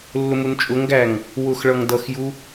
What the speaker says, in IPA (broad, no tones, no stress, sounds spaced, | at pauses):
lː ʊ m u n t͡ʃʼ ʊ ŋ ɡ æ ŋ | w ʊ x ɭ ʌ ŋ d ʌ x j u